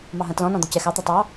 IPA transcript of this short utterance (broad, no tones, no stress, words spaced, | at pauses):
mɑɦɐ̃tlɔ̃ nɔ̃d̪ɔcɛ xɑ t̪ɐtˤɑ